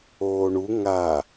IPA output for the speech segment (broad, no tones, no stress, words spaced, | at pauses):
oːɳu ŋa